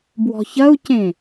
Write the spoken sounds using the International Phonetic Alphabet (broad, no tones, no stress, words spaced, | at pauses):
bwɔ̤çɐu̯cẽ